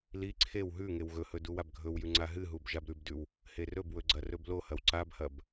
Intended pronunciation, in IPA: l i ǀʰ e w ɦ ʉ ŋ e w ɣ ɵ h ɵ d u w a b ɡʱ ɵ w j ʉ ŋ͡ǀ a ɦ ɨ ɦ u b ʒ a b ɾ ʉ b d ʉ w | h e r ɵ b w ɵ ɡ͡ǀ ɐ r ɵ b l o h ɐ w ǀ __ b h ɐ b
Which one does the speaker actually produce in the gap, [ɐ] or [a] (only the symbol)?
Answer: a